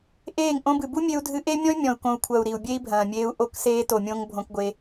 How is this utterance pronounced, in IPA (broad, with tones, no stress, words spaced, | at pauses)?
ʔeː˦˨ŋ ʔõ˧bɨ˨bu˦ mʲe˧u̯dʱɨ˧ʔe˦mʲɔ̃˦y̯ mʲɔ̃˨u̯kõ˨u̯kʷʰɐ˨u̯ ɾi˨u̯bʲe˦i̯bʱɐ̃ː˨mʲeː˧u̯ ʔo˧kseː˧ to˨mʲõ˦ŋ bʱõ˧kɡʷe˧